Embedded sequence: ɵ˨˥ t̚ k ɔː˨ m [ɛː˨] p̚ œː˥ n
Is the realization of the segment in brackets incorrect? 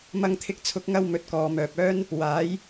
yes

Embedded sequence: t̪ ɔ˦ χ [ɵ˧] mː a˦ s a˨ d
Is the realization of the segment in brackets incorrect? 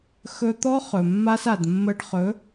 yes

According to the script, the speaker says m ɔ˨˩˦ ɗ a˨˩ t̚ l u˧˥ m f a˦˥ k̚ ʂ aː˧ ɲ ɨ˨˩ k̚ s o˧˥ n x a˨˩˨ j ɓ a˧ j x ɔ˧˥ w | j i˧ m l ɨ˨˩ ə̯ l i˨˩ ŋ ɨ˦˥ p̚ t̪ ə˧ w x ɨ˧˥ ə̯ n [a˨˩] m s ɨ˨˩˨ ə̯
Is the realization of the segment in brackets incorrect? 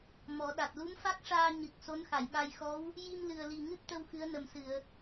yes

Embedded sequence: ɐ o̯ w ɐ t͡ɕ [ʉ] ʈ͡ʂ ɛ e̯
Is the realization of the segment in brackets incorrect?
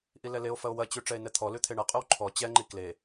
no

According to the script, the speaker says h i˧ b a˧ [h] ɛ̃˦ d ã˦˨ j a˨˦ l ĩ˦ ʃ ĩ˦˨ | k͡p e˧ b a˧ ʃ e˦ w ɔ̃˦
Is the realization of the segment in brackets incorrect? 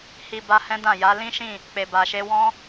no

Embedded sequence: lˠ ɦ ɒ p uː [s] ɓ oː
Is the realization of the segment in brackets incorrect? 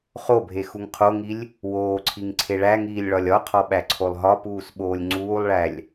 no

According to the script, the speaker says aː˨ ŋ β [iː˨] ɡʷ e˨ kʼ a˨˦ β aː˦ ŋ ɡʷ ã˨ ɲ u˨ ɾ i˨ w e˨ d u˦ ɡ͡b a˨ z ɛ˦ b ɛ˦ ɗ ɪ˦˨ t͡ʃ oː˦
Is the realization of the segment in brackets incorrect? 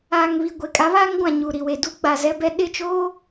yes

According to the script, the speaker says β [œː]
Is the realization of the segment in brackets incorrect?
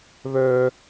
no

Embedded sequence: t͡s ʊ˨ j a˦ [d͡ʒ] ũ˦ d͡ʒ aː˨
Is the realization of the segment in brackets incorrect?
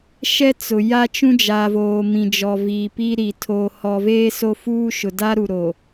yes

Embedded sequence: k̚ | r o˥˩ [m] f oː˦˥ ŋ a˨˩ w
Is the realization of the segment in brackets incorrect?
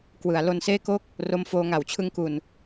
no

